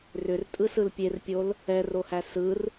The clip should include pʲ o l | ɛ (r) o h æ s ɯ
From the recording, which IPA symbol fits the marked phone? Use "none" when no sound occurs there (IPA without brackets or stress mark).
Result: r